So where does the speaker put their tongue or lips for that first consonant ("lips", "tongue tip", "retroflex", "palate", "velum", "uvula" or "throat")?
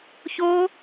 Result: palate